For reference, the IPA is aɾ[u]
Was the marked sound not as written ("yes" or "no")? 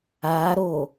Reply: yes